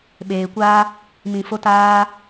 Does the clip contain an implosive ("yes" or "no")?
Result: yes